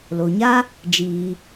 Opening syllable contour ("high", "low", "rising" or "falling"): low